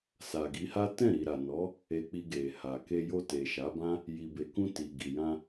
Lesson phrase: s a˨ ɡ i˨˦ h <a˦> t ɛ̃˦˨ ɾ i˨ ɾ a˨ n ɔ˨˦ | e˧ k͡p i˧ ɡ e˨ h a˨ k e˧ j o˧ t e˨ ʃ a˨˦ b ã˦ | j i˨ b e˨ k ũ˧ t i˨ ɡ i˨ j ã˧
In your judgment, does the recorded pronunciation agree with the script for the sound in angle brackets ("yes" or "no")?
yes